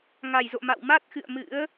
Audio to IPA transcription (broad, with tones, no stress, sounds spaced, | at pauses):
ŋ a˧˩ j z o̰˧˨ m a̰˧˨ w m a˦˥ t̚ x ɨ̰˧˨ ə̯ m ɨ̰˧˥ ə̯